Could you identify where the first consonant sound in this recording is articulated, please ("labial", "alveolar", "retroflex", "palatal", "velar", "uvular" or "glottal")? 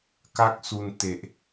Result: velar